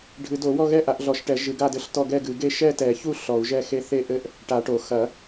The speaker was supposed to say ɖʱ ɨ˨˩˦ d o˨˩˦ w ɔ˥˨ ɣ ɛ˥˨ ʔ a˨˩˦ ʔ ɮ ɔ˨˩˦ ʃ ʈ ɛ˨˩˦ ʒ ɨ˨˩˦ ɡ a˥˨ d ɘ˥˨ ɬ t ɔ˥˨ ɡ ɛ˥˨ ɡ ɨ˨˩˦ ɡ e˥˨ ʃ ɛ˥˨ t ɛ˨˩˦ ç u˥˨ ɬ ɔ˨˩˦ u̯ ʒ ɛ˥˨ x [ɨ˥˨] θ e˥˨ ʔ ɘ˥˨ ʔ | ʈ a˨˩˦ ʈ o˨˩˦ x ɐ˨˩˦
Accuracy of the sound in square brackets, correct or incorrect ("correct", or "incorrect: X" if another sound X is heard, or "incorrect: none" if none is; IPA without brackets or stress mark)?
incorrect: e˥˨